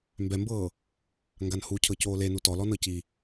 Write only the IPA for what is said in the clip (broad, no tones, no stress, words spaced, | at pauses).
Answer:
mbɛmbɤː | ŋɡanhu cʰɤcoːlenu tɔlɔnɤ ci